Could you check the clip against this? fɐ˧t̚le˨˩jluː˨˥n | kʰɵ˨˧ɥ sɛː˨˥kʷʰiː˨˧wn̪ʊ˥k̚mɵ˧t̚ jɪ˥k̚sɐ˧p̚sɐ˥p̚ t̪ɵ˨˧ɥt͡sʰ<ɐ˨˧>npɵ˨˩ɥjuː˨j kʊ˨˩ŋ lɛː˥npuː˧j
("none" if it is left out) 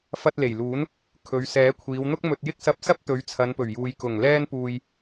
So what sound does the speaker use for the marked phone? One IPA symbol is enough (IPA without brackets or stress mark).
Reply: ɐ˨˧